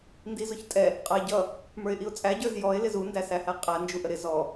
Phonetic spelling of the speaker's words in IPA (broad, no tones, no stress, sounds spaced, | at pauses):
n d i z ʊ ç tʼ ɛ | qʼ ʌ ɪ̯ ɟ ʌ | m ə˞ ɪ̯ ʔ i ʊ̯ t͡sʼ æ ɟ ə˞ z j ɔ ɪ̯ l ɪ z u n d æ s æ h æ qʼ æ n d͡ʒ u ʔ ə ɾ ɪ z ɔ